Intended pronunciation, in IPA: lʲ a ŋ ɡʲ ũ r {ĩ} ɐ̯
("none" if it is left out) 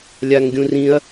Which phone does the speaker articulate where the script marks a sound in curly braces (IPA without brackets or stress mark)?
ĩ